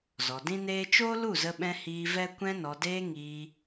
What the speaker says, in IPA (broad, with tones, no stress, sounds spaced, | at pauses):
z ɔ˨ d ĩ˦ n eː˦ t͡ʃ oː˦ l u˦˨ z ə˧ ɓ ɛ̃˧ h iː˧ v ɛ˦ kʷ ɛ̃˧ n ɔ˨ d eː˧ ŋ iː˧